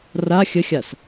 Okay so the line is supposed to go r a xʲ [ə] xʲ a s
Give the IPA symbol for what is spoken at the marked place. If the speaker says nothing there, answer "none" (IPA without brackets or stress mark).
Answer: ə